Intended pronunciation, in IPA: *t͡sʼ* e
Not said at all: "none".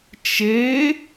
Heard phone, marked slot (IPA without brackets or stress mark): t͡ʃ